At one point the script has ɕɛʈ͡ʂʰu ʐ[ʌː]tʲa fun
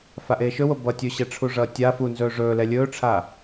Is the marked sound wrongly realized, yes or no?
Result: no